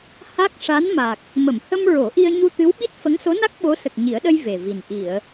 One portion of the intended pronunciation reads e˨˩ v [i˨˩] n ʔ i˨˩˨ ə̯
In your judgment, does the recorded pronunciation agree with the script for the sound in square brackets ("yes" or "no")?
yes